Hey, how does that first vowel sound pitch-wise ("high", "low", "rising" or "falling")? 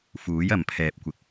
rising